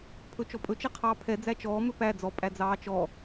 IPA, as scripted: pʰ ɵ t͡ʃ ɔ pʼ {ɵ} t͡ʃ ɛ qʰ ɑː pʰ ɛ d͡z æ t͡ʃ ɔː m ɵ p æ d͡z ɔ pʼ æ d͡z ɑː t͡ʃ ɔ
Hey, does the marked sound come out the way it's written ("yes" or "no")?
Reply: yes